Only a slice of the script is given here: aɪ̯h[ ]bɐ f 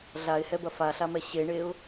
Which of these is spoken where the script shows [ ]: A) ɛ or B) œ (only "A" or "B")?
A